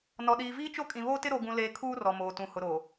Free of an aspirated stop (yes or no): no